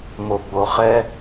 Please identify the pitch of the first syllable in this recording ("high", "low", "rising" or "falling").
low